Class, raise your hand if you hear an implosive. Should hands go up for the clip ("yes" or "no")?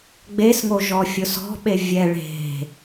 yes